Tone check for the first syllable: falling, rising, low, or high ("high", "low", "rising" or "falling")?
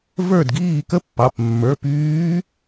falling